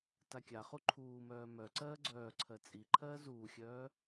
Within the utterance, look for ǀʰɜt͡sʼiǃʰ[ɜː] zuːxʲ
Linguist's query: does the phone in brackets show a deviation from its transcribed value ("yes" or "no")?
no